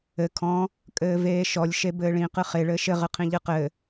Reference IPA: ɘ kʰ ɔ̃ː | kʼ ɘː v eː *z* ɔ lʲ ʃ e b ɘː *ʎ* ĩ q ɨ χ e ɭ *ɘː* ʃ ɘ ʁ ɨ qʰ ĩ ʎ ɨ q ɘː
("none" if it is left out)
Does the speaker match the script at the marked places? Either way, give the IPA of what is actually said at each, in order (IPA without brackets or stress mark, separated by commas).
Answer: ʃ, ɭ, ɘː